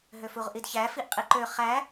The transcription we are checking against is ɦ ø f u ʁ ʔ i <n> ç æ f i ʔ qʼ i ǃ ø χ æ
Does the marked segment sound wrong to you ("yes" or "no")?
yes